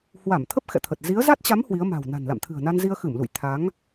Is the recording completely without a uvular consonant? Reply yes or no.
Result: yes